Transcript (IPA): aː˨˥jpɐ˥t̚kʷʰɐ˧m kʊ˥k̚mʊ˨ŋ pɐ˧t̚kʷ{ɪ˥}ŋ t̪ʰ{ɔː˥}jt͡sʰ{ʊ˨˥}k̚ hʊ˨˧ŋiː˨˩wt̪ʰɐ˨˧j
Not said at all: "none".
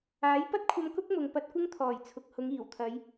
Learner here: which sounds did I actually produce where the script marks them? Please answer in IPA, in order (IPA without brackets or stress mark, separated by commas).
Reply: ɪ˥, ɔː˨˩, ʊ˨